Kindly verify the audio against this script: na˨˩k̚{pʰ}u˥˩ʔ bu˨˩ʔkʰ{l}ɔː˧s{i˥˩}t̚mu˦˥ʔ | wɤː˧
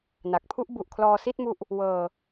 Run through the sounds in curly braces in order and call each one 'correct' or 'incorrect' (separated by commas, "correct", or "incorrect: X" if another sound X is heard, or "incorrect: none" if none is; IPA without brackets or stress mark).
correct, correct, correct